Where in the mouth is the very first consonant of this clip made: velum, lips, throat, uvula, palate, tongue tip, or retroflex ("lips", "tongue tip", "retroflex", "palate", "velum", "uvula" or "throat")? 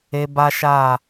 lips